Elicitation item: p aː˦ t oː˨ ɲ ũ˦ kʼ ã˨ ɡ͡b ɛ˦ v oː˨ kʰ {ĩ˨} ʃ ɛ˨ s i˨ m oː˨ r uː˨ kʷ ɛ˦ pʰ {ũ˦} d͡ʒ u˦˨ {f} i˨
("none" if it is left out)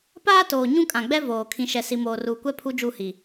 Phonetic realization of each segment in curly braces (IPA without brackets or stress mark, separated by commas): ĩ˨, u˦, h